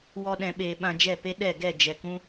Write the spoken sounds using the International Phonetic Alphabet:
w ɔ˧ ɗ ɛ̃˨ ɓ eː˨ ɓ ã˧ d͡ʒ ɛ˦˨ p e˦ ɗ ɛ˦˨ ɡ ɛ˦˨ d͡ʒ ɛ˨ k ũ˦

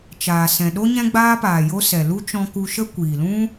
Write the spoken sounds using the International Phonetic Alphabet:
t͡ʃ aː˨ s ɛ̃˨ ɗ o˦ ɲ ɛ̃˦ ɡ͡b aː˦ p aː˨ j o˦ s ɛ˨ l u˦ t͡ʃ ɔ̃˧ k u˧ ʃ ə˦ kʷ iː˨ l ũ˦

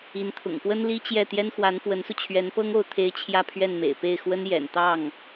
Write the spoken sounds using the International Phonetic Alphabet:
i˧˥ n t̪ʰ ʊ̰˨˩ ŋ p w ə˥ n l i˥ t͡ɕ j ɛ˥˩ t̪ j ɛ˥ n x w a˧˥ n f w ə˧˥ n s u˧ t͡ɕʰ ɥ ɛ˧˥ n p ɤ˥ ŋ o˧˥ ʊ̯ t̪ʰ e˧˥ ɪ̯ t͡ɕʰ j ä˥˧ pʰ ɥ ɛ˥˩ n m ḛ˨˩ ɪ̯ p e˥˩ ɪ̯ x w ə˥ n j ɛ̰˨˩ n t̪ ɑ˥˩ ŋ

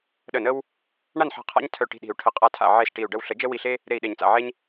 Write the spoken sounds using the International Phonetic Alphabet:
ɗ ə˧˩ n ə˦ w | ɳ a˥˨ n ħ a̤˧˩ qʰ a̰˦ ɲ tʰ œ˧˩ ʈ i̤˧˩ ɗ i̤˨˩˦ u̯ ʈʰ ə˨˩˦ qʼ a˧˩ tʰ a̰˧˩ ʕ e˥˨ s ʈ i˧˩ u̯ ɖ ə˥˨ w ɬ ə˨˩˦ d͡ʒ ə˦ w i˧˩ ɬ e˦ | ɾ e˧˩ i̯ ɗ e˨˩˦ ɲ t͡s a̰˧˩ ʕ e˦ ɲ

